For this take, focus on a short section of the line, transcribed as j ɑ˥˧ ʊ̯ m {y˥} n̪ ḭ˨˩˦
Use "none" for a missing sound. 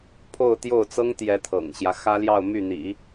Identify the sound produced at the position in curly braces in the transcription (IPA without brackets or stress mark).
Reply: y˥˩